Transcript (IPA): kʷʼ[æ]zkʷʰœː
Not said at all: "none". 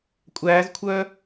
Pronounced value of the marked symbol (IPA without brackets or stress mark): æː